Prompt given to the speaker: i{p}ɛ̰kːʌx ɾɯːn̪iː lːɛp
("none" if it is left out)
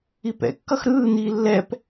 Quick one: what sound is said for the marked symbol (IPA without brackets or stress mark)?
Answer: p